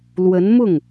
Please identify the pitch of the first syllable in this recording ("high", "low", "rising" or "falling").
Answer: rising